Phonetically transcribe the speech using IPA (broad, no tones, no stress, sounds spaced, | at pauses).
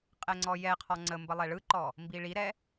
qʼ ɛ ŋ͡ǀ ɔ j ɛ qʰ ɔ ŋ͡ǀ ə m b ə lˠ ɛ ɭ ɯ ǃ ɔ | m b i ɭ i ɾ ɛ